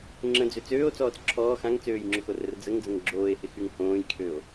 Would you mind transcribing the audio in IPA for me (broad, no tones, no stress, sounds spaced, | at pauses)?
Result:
ŋ͡ǁ ə̃ d͡z ʏ t͡s øː o̯ t͡s ɔː t͡s ǁʰ ɔː x ã ŋ t͡s øː j ŋ͡ǁ ʊ x o r ə r d͡z ə ŋ d͡z ə̃ ŋ ɡ͡ǁ oː e̯ h ɪ x y ŋ h õː j kʰ ø o̯